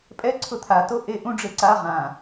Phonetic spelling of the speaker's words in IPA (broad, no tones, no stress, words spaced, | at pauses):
pʼɛ ǀʰʊt̪ʰato ʔe ʔũɖ͡ʐe ǀa ʁã